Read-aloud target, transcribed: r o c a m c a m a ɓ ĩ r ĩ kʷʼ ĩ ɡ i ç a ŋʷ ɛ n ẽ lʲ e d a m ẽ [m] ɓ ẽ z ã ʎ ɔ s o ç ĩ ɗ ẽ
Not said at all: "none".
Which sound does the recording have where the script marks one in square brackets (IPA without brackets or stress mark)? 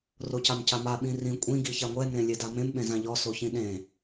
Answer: m